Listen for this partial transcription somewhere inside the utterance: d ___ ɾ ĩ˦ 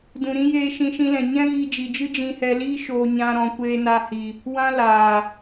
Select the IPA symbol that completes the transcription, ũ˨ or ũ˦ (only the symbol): ũ˨